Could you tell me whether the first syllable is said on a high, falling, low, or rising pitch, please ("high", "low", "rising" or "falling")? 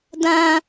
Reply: high